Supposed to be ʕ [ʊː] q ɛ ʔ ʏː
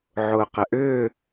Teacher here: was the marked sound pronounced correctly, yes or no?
yes